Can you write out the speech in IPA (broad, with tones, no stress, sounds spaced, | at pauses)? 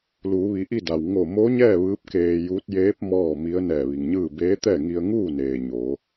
l uː˩˧ ʋ i˩˧ ʔ i˥˨ d a˩ w ŋ o˧˩ m o˧˥ ɲ ɛː˥˨ ʋ ɯː˧˥ p̚ k eː˧ j uː˧˥ t̚ j eː˧˥ p̚ m ɔː˥˨ m i˧˥ ə̯ n ɛː˧˩ ʋ i˩ ŋ ɲ ɯː˥˨ b eː˧˥ t̪ ɛː˥˨ ŋ i˧ ə̯ ŋ uː˥˨ n eː˩ ɲ o˩˧